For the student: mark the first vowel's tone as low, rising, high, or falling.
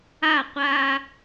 falling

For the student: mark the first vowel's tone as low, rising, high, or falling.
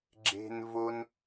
high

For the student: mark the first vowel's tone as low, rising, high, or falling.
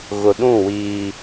low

